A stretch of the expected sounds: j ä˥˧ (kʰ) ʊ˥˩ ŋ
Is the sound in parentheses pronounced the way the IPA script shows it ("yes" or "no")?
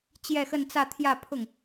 no